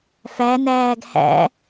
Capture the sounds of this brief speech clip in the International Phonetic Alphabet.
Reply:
f æ n æː ɡ h æ̰

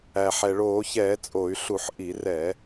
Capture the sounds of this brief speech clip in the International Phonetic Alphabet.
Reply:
æ˩ ħ ɛ˩ ɭ oː˧˩˧ ç ɛː˧˩˧ t͡sʼ o˧˩˧ y̯ ɬ u˧˩˧ ħ ʔ i˧˩˧ r ɛː˧˩˧

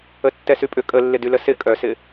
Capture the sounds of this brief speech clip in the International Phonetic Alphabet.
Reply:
ə tː ɛ s y pʼ ʏ kʼ ə lː ɪ d y l ə s ɪ kʼ œ s ɪ

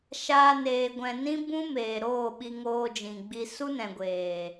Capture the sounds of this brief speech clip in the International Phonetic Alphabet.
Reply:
ʃ aː˧ n eː˨ ɡʷ ɛ̃˨ n ĩ˦ b ũ˦ m eː˨ ɾ oː˦˨ ɓ i˧ ŋ oː˧ d͡ʒ ĩ˨ ɡ͡b i˧ s u˦ n ɛ̃˨ ɡʷ eː˨

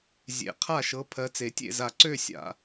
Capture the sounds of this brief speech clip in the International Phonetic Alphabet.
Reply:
zʲ ḛ˨˩˦ qʰ a˥˨ ʃ ɤ˨˦ pʰ ɜ˨˦ t͡s e˨˩˦ tʲ ḛ˥˨ z a˨˩ ǀ ø˥˨ sʲ a̰˨˩

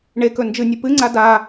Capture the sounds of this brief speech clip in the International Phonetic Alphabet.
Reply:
ɳ e k ɵ n d͡ʒ ɨ nʲ ɨ p ɨ ŋ͡ǀ a d a

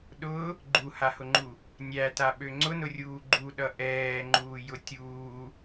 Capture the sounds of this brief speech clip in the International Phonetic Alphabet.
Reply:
ɗ ʊ | ɡ͡ǃ u h a h ʊ ŋ͡ǃ u | nʲ æ t a ɓ ø ŋ͡ǀ ʊ n ʊ rʲ uː ɡ͡ǃ u ɗ ʌ ʔ ɛː ŋ͡ǃ uː j ʊ tʲ uː

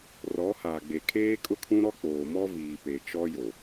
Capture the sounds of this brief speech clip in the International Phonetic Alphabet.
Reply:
r ɔ˨˦ h aː˨ ɡ͡b e˨ kʰ eː˦ kʼ ʊ˦ kʰ ũ˦ ɾ ɔ˦ k͡p oː˨ m ɔ˦ v iː˨ p e˨ t͡ʃ ɔ˦ j o˨

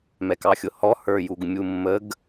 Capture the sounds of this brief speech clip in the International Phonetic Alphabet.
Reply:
m ɛ k ɑ xʲ ʊ h ɔ h ə˞ j u ɡ mʲ u mː ə ɡ

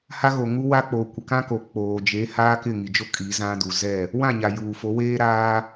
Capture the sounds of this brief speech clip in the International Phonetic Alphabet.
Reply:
h a˦ ɣ o˨ ŋ u˦ w a˦ k͡p oː˨ kʷ ɪ˨ k ã˦ k o˨ k͡p oː˨ d͡ʒ e˨˦ h aː˦ k ɪ˦˨ ŋ i˨ d͡ʒ o˦ kʼ i˨˦ z ã˦ d u˨ z ɛ˦˨ | w ã˦˨ ɲ a˨ j uː˨ f o˨˦ w eː˦ ɾ aː˦

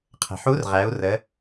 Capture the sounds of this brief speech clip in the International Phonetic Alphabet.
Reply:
qʰ ə̤˩ ħ u˧˥ r ʁ æ˩˧ u̯ r ə˩˧

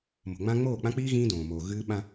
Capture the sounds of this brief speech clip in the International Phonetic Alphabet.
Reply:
m o̤˨ ŋ͡m ã˦ ŋ͡m oː˦˨ k͡p ã˦ k͡p iː˦ ɣ ĩː˦ d õː˨ m oː˨ ɣ ɨː˦ ɓ ã˦

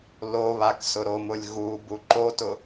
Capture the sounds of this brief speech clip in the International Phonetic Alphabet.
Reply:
l o β a k s ʊ ɾ o m ʊ lʲ ɣ u b u ǃ o t ʊ

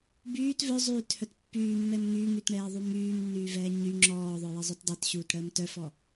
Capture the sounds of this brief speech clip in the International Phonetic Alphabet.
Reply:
b yː t v œ zˤ yː t h œ t pː yː mː ɛ m ŋ yː ŋ y t ɳ ɛː ðˤ u m yː m nː yː v ɛː ɲ y ŋ͡ǁ ɔː ðˤ œ j ə zˤ œ t dˤ ɛ t ɕ uː t ɽ əː m t œ f ɔ

